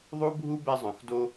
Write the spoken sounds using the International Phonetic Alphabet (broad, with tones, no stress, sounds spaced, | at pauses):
ðˤ u˦ bʱ u˦ b ɛ˧ zˤ œ̃˨ x d o˧